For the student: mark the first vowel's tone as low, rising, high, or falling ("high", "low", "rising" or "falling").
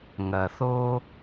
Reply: low